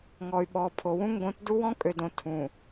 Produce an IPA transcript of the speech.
ŋ ɔ˨ y̯ ɓ ɔ˨ pʰ o˨ w ũ˦ ŋ ɡ õ˨˦ t d u˦ w ɔ̃˦ kʼ ø˨ d õ˨ tʰ ũ˨

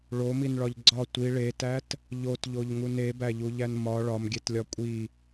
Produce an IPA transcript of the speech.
ɭ o m i n ɭ ɒ ʎ ɡ͡ǀ ɒ tʷ i ɭ e t æ t | ʎ o t ʎ o ʎ ŋ u n e b æ ʎ u ʎ æ n m ɒ ɭ ɒ m ɡʲ e t lʲ ɒ kʷʼ i

